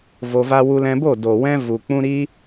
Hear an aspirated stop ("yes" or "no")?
no